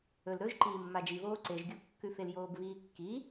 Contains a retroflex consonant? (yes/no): no